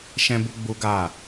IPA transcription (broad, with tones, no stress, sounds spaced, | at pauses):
ʃ ɛ̃˦ b u˦ ɡ͡b u˦ ɡ a˦˨